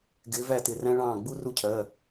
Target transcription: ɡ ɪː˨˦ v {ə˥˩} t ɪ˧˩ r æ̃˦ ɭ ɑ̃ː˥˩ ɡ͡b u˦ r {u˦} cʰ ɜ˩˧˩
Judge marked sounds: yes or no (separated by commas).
no, yes